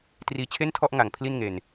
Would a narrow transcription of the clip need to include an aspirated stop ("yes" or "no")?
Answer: yes